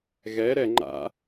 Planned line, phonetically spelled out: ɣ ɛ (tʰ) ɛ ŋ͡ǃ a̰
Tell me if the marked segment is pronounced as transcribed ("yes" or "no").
no